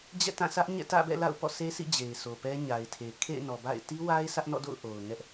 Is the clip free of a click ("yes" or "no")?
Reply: yes